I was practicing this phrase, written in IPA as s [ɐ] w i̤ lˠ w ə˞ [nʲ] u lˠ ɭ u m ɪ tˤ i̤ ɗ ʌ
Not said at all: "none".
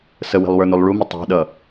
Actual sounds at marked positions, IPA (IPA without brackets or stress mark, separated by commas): ə, n